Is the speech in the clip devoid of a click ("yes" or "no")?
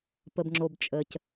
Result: no